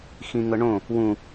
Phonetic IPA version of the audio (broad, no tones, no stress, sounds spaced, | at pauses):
x ĩ ŋ ɤ ɳ õ | w ũ